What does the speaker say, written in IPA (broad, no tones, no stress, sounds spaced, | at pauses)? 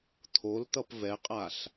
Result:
t̪ʰ o l t̪ ʌ p v ɛ qʼ a ɬ